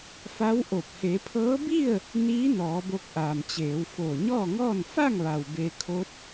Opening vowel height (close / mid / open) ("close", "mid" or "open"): open